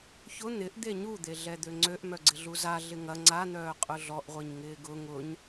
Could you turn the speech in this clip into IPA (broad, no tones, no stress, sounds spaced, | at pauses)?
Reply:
ç ʊ n̪ ɪ ʔ d̪ e ɲ u d̪ e ɮ ɛ d̪ ø ŋ͡ǀ ø ʔ m œ ɡ͡ǀ ɪ ɮ u z a ɮ ɪ ŋ ɐ ŋ͡ǀ a n̪ œː qʼ ʊ ɮ ɔ ʔ ʁʷ i ɲ ŋ ɪː ɡ ʊ ŋ ʊ ɲ